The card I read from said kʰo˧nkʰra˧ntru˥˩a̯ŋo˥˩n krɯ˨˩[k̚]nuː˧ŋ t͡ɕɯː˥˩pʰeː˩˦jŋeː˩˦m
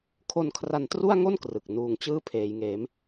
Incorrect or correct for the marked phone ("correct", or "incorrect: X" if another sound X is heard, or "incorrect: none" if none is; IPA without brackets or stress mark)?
correct